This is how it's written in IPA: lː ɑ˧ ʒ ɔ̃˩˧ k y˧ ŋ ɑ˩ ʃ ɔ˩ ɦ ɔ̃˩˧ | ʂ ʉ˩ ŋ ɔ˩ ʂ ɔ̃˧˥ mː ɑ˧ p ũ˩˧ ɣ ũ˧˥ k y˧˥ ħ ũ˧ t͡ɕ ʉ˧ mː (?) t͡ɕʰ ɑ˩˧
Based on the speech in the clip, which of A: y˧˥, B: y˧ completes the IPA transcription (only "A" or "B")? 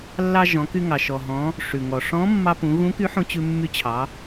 A